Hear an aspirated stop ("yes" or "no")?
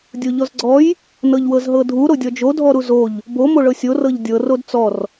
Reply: no